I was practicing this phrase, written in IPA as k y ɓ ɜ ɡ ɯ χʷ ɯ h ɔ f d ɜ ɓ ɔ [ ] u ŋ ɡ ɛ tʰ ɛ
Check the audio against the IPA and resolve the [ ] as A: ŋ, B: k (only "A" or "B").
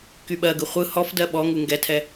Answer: A